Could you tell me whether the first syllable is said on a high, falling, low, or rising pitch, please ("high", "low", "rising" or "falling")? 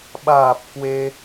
low